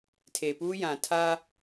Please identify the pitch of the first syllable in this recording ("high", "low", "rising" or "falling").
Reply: low